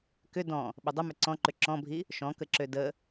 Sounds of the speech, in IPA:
k ʏ d ɔ̃ | ɓ ʏ dˤ ə m ʏ ǀ ɔ̃ ǃ ø ǁ ɔ̃ bʱ i | ʃ ɔ̃ k ə ǁ ø d ə

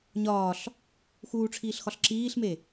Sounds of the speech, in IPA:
ɲ ɒː ɬ | x uː ʈ͡ʂʰ iː ɬ x ɒ ɬ ǁ iː ɬ m e

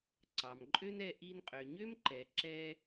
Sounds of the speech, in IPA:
ǀ ɑ˩ m ǃʼ ø˥ n ɛ˧ ʔ i˧ n qʼ ø˩ ɲ ø˥ m ǃ ɛ˩ ǁ ɛ˧

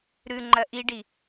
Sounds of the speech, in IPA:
ɾ ʉ ŋ͡ǃ ɐ ʔ i ɖ i

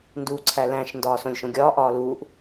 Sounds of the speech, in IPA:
n d uː ǀʰ æ l æ̃ ʃ n d ɒː s õ lʲ ʃ õ ɡʲ ɒː ʔ ɒː l uː ʔ

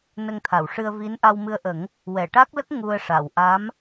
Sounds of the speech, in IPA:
n ə˧ ŋ t̪ʰ a˨˩˨ w ʂ ɨ˧ ə̯ v i˧˥ n ʔ a˧ w m ɨ˧ ə̯ ʔ ə˨˩˦ ŋ | w ɛ˨˩˨ ʈ a˦˥ k̚ l ə˦˥ k̚ ŋ u˧ ə̯ ʂ a˨˩˨ w ʔ a˧˥ m

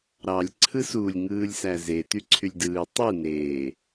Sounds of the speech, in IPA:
ɾ ɑ lʲ ǀʰ ɯ s u lʲ ŋ ɯː lʲ s æ z e t y ǀʰ y lʲ d ɯː tˤ ɯ n eː

